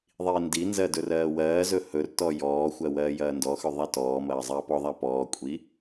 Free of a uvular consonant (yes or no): yes